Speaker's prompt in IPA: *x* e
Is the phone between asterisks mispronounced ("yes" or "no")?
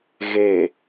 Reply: yes